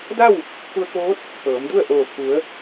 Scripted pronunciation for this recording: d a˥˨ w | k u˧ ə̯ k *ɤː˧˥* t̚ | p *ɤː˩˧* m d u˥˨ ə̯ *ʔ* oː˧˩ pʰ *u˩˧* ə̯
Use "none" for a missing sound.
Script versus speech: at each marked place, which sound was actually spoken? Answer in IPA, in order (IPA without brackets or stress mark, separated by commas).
oː˧˥, ɤː˩˧, ʔ, u˩˧